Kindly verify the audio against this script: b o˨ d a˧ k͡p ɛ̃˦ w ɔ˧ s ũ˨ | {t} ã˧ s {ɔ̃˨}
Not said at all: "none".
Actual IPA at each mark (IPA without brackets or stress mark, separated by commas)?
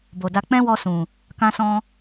k, ɔ̃˧